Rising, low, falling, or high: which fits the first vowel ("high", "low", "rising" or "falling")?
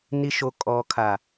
low